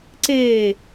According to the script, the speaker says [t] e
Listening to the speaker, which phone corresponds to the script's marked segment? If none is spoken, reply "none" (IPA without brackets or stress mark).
ǀ